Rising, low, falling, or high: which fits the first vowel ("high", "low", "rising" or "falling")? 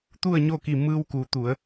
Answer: falling